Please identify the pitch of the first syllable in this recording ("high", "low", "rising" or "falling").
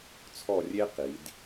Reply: falling